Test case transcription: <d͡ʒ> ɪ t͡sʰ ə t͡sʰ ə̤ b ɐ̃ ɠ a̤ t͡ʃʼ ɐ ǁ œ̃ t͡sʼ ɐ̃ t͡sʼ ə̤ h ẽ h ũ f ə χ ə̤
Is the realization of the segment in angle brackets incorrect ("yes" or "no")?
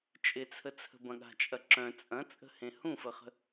yes